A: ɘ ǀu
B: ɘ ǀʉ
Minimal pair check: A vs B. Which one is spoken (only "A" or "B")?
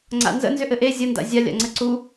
A